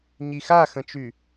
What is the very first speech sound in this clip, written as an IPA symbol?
ɲ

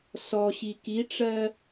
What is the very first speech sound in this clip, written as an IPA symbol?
s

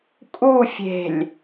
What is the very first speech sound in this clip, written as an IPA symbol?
kʼ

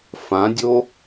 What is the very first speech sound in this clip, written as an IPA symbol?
f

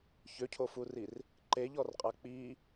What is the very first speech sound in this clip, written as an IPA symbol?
ç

